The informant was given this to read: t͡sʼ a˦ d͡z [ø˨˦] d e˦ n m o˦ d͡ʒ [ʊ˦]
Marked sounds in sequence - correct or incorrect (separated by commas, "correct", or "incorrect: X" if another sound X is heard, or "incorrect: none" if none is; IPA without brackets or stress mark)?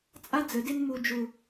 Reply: incorrect: ə˨˦, correct